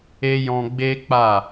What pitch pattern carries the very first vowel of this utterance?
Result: high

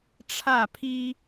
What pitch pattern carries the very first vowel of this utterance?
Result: falling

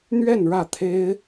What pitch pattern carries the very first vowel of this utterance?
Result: falling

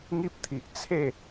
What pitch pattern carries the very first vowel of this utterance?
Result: high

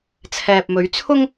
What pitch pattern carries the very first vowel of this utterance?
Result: low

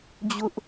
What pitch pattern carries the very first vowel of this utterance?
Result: high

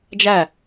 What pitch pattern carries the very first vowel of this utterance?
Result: falling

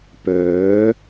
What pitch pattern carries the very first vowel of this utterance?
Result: rising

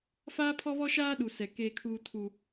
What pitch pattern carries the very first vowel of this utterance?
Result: high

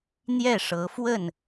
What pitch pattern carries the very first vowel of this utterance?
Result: falling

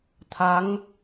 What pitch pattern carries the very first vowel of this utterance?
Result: rising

